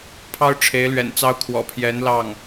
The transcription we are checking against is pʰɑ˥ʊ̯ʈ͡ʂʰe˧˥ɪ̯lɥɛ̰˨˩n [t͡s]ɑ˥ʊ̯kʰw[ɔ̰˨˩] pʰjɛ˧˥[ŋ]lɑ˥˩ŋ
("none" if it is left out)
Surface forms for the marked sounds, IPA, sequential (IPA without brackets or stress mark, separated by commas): t͡s, ɔ̰˨˩, n